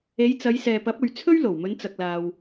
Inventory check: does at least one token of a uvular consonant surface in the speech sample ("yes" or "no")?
no